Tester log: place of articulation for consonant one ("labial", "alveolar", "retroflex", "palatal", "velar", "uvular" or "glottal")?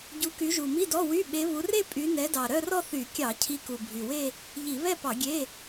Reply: palatal